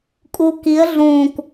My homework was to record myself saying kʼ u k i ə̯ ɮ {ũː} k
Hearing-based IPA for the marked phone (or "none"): ũː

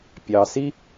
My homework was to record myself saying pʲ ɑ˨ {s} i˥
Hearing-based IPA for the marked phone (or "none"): s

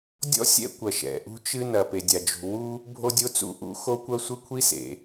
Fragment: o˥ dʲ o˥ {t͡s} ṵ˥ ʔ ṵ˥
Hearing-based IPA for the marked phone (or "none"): t͡s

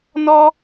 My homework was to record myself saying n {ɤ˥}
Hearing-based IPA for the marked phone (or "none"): ɔ˥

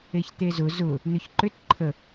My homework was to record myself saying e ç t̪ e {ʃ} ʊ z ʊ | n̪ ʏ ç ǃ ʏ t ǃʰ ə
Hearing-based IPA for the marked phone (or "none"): z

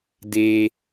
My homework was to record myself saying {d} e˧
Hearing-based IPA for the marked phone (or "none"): d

